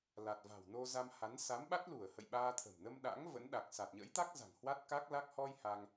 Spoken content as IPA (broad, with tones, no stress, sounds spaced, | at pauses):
l a˨˩ t̚ v a̤˨˩ w n o˧ z a˧ m h a˨˦ n s a˨˦ m ɓ a˦˥ t̚ l u˧˩ ə̯ h ə̰˧˨ j ɓ aː˧ t̪ʰ ə̤˨˩ m n ə˧ m ɗ a̰˧˥ ŋ v ə̰˧˥ n ɗ a˨˩ k̚ s a˨˩ t̚ ɲ ə̰˧˥ j t̪ a˦˥ k̚ z a̤˨˩ ŋ h w a˦˥ t̚ k a˦˥ k̚ l a˦˥ k̚ h ɔ˧ j h a˧ ŋ